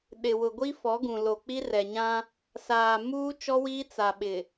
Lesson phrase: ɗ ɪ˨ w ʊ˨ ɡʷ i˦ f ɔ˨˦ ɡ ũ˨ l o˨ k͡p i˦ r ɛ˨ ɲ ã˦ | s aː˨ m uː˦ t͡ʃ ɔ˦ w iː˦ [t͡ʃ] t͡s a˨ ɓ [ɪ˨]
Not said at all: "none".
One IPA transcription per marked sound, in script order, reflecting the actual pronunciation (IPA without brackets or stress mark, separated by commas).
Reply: none, ɪ˨